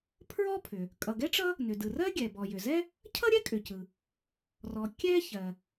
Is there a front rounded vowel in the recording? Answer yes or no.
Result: yes